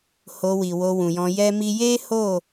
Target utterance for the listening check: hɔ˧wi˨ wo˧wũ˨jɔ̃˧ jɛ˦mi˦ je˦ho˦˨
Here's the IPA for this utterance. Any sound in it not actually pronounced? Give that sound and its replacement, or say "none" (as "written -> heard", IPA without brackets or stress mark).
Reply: ɔ˧ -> o˧